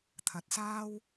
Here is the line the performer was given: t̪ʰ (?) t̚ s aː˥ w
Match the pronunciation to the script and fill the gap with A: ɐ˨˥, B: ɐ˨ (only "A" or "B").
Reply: B